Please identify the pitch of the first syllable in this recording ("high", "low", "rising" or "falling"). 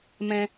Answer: high